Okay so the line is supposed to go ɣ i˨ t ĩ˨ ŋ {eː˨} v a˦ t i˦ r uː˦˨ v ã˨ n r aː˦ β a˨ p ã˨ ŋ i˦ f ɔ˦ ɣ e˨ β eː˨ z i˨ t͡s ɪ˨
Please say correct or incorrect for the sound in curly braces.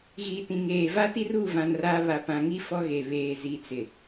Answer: correct